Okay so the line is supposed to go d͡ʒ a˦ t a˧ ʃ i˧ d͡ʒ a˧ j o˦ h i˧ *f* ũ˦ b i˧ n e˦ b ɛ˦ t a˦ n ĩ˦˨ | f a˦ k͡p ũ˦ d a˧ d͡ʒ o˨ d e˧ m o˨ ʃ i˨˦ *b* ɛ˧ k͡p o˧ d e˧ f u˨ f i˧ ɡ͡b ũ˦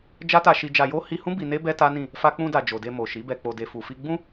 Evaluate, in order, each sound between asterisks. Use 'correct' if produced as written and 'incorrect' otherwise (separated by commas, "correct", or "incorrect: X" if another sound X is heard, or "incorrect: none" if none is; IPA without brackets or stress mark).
incorrect: h, correct